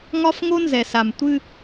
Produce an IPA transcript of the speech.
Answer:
ŋ ɒ˦ f ŋ o˦ n z ɛ˨ s a˨ m tʷ ɨ˦

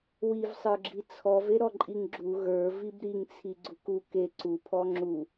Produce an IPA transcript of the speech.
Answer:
w i v sˤ ə˞ ɡ͡ǁ i t͡sʰ ɔ v e ɾ ɔ ǃʼ i ŋ ɡ͡ǁ u ɣ ə˞ v i b ɾ i ŋ t͡sʰ i ɡ͡ǀ u k u k e ǀ u pʰ ɔ ŋ͡ǁ u

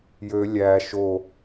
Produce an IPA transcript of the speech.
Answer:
j ø lʲ æ ʃ o

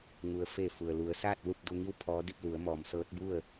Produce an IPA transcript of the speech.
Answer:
ŋ u˩ ə̯ f e˧˩ f u˩ ə̯ l u˩˧ ə̯ s aː˥˨ t̚ l u˥˨ p̚ d u˧ ŋ i˥˨ w pʰ ɔː˧˥ d i˥˨ p̚ l u˩˧ ə̯ m ɔː˩˧ m s ɤː˧˥ t̚ b u˥˨ ə̯

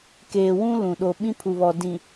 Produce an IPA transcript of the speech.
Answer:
k eː˨ w ũ˦ l ũ˨ ɗ o˨ ɓ ĩ˦ pʰ u˨ β ɔ˨ d ĩ˨

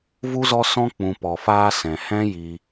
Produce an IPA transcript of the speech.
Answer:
v u˦ z ɔ˦ s ɔ̃˦ k͡p ũ˨ p ɔ˨ f aː˧ s ɛ̃˨ h ɛ̃˦ j i˧

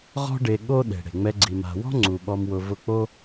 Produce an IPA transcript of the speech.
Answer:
ʁ ɔ̤˦ ɖ e˧ ɠ o˦ ɗ e̤˨ ɽ e̤˨ ŋ͡m ɛ˧ ɡ͡ǀ i˨ m a̤˨ w ɔ̤˦ ŋ͡ǀ u˨ ɓ ɔ˨ m w ʊ˨ v ʊ˦˨ k͡p o˦

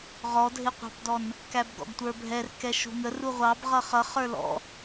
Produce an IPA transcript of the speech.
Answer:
ʁ ɔ dʱ ɪ qʷ ɑ̤ p d ɔ n | k æ b ɡ ɔ̰ ɡ tʷ ə˞ bʱ ɛ r k ɛ ʃ ṳ ŋ ə r u ʁʷ ɑ b ʁ ʌ χ ʌ χ ə˞ l ɔ̰

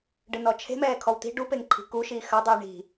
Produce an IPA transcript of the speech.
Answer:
ɖ ɨ n ɔ t͡ʃʰ e̤ m ɛː kʰ ɔ w t̪ i̤ ɖ u p e ŋ ǃʰ i̤ k u ʃ iː x ɐ dˤ iː ɳ i̤

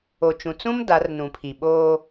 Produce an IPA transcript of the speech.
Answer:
o˨ t͡ʃ ũ˨ t͡s ũ˦ m d a˨˦ r n ũ˨ pʰ i˨ ɓ oː˦

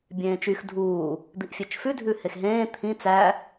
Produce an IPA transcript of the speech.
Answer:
bʲ ẽː t͡ʃ y x dʱ uː | d̪ i ʔ fʲ e t͡ʃ f ʉ dʱ ʉ h e x ɦ ẽː t̪ʰ ĩ t͡s æ

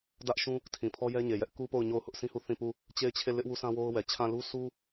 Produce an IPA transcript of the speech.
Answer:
d ä˦ ʔ ʃ ũ˦ | tʰ ĩ˨ pʰ ɔ˦ j ɛ˦ ɲ e˨ j ɛ˦ ʔ k u˦ p o˦˨ ʊ̯ ɲ o˦˨ ʊ̯ h ʊ˦ ʔ sʰ ĩ˦ h u˦˨ θ ĩ˦˨ p u˦˨ | t͡ɕ e˦˨ ɪ̯ t͡ɕʰ e˦˨ l ɪ˦ ʔ w u˦ sʰ ã˦ w o˦ ʊ̯ w ɛ˨ t͡ɕʰ ã˦˨ l u˦ sʰ u˦

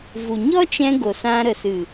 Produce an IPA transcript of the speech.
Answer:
v u˨ ɲ ɔ˦ t͡ʃ ɛ̃˧ ɡ o˨ s ã˧ ɾ ə˨ s ɨ˨

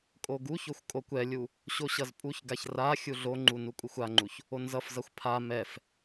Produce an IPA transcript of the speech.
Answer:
kʼ o ɡ u ç o xʷ kʼ o kʷ ɛ lʲ u | ɕ o ɕ ʌ z pʼ u ç ɡ a ç r a xʲ u ɮ o ŋ͡ǃ u n u kʷʼ ɯ xʷ a ŋ͡ǃ u ç | o n z ʌ f z ʌ xʷ pʰ a m ɛ f

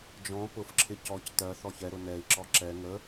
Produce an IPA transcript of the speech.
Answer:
d͡ʒ ɔ̃ p ʊ f ǁʰ ɪ c ɔ c t ɜ θ ɔ ç ɛ ɾ ʊ n ɛ i̯ ǁ ɔ ǁ ɛ ŋ ə

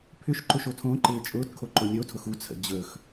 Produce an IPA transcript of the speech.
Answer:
pʰ ʏ ʃ ǃ ʊ ʃ o tʰ õ ǃ ɪː t͡ʃʼ ʊː t kʰ o ǃ ʊ nʲ o tʰ ʊ x u t͡sʰ ə̰ d͡ʑ ɵ x

